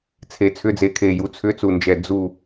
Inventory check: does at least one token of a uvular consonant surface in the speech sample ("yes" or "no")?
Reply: no